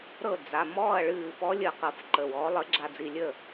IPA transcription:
ɾɤ˥˨ d͡za˩˧˩ mɔː˥˨ɐ̯ɭɨː˧˩fɔ˧˥lʲə˧˩ qɤ˧˩fǃə˩˧˩wɔː˩˥ lˠə˩˥ɡ͡ǁa˧˩d͡zi˧˩ lʲə˥˨

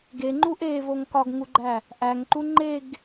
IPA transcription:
ɡeŋ͡ǃu ʔevoŋ kɒɡŋuɡ͡ǃæ | ʔæŋǃu ŋ͡ǃeɡ

